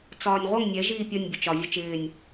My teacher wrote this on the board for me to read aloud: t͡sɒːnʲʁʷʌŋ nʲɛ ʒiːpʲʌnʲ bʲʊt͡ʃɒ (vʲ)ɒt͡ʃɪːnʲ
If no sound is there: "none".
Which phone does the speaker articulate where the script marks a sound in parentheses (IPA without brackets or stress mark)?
vʲ